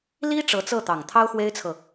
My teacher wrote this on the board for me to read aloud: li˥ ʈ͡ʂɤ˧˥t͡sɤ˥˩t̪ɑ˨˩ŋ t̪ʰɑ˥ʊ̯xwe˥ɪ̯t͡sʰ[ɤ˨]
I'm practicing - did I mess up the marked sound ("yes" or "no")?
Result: no